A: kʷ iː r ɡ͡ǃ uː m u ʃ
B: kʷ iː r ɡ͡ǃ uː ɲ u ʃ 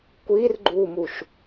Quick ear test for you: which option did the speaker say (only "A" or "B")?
A